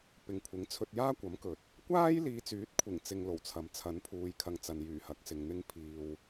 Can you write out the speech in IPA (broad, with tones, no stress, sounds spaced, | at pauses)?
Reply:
p ɪ˨ ŋ kʷʰ ɪ˨˥ ŋ t͡sʰ ɵ˧ t̚ j aː˥ kʷ ɐ˨˥ m k ɵ˨˥ t̚ | kʷ aː˥ j l iː˨˧ t͡s yː˨˥ t̚ kʷʰ ɪ˨˩ ŋ t͡s ɪ˧ ŋ l o˨˩ w t͡sʰ ɐ˨ m t͡sʰ ɐ˨˥ n pʰ uː˨ j kʰ ɐ˨ ŋ t͡s ɐ˨ n j yː˨˩ h ɐ˨˥ k̚ s ɪ˨ ŋ n̪ ɪ˧ ŋ pʰ iː˨ w